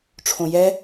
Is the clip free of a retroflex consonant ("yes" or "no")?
no